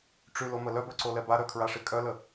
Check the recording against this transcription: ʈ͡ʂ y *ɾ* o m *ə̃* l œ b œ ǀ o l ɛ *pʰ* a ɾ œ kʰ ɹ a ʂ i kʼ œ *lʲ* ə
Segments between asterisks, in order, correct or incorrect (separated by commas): incorrect, incorrect, incorrect, incorrect